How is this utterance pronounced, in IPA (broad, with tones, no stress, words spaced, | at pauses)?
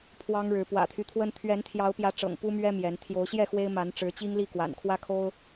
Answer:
pʰwɑ˦ŋɻɻ̩˨˦ pwä̰˨˩t̪ʰy˦t̪ʰwə˦n t̪ʰɥɛ˨˦nt̪ʰjɑ˨˦ʊ̯pjä˨˦ ʈ͡ʂɤ̰˨˩ŋpu˦mɥɛ˦ mjɛ˨˦n t̪ʰjo˨˦ʊ̯ɕjɛ˥˨ xwe˦ɪ̯ ma˨˦nʈ͡ʂɻ̩˨˦ t͡ɕi˦ŋli˥˨kwa̰˨˩nkʰwä˦ kʰo˦ʊ̯